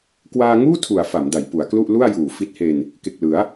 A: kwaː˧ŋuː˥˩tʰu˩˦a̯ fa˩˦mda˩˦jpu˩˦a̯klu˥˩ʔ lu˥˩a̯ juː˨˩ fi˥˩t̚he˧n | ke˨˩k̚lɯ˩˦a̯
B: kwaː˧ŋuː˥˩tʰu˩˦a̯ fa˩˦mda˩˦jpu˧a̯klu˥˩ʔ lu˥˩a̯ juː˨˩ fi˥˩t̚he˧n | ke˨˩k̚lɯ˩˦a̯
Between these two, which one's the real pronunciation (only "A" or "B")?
A